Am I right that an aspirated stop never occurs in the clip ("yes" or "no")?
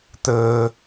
yes